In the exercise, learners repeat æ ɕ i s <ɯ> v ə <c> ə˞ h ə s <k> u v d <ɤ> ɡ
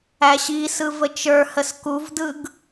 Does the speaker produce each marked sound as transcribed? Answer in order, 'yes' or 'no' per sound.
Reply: yes, no, yes, no

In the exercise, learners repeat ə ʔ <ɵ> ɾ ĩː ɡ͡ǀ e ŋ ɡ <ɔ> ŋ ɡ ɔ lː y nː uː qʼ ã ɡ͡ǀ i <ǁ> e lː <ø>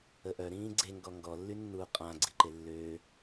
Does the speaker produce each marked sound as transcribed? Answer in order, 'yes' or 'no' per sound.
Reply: no, yes, no, no

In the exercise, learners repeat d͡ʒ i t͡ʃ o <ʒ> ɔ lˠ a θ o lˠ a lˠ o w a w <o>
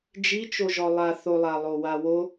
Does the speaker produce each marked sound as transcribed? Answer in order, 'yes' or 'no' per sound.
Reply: yes, yes

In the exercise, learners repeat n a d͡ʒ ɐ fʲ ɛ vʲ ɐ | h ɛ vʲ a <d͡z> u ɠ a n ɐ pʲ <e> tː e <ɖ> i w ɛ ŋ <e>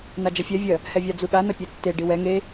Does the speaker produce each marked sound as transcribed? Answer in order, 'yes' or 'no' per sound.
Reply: yes, no, yes, yes

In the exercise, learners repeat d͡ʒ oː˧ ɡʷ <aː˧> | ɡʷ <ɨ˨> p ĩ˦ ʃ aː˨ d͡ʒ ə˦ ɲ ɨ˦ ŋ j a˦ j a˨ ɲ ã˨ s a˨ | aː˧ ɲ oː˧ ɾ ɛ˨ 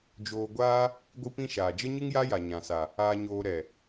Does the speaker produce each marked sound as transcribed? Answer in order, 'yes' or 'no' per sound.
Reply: no, no

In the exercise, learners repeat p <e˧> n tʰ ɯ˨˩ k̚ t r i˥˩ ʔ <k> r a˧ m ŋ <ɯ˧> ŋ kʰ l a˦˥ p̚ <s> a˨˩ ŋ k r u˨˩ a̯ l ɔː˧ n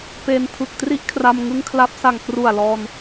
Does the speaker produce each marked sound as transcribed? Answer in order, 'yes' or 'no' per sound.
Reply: yes, no, yes, yes

